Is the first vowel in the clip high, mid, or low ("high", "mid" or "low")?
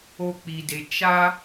mid